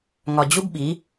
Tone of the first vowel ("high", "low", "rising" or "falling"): low